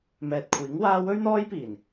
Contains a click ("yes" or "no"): no